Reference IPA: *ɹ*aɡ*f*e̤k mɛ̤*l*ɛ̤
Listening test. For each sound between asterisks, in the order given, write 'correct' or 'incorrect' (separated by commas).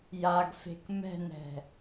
incorrect, correct, incorrect